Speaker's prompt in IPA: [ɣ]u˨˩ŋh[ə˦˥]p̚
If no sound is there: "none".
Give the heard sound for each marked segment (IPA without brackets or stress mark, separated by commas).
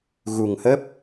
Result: ɣ, ə˦˥